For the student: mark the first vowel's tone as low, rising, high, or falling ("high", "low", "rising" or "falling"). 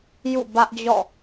falling